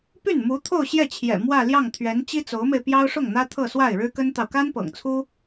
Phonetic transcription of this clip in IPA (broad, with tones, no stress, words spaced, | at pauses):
py˥˩nmu˧˥ t̪ʰo˥˧ʊ̯ɕjɛ˥˩t͡ɕʰjɛ̰˨˩ mwä˥˧ljɑ˥˩ŋt̪ʰɥɛ˧˥n t͡ɕi˥t͡so˧˥ʊ̯me˧ɪ̯pjɑ˥ʊ̯ ʂʊ˥˩ŋn̪ä˥ t̪ʰɤ˥˧swa˥˩ɪ̯ɻɻ̩˥ kə˥nt̪ɑ˨ʊ̯ ka˥npɤ̰˨˩ŋt͡sʰu˥